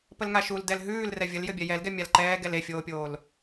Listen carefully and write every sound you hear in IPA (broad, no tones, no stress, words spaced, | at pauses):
pəlŋaʃul dɛlɦʉːl rɛvʲəl jɘbʲɛjɛlɡɛ mʲalǃɛːɡɛl efʲoːpʲoːl